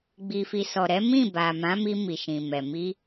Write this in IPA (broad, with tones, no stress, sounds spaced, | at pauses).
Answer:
ɡ͡b i˨ f i˨ s ɔ˨ ɾ ɛ˨˦ m ĩ˦˨ b a˨ m ã˨˦ m i˧ m i˨ ʃ ĩ˨ m ɛ˨ m i˧